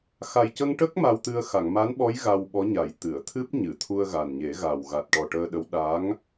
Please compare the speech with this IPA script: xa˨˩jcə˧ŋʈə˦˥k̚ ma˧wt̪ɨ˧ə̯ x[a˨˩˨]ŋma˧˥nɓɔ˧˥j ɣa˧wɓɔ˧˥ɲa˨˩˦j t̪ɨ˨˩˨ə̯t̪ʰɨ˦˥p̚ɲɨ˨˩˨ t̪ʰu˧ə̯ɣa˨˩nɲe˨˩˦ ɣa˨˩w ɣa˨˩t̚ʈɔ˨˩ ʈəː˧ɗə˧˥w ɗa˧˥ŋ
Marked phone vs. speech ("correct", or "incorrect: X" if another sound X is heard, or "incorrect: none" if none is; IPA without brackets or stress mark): correct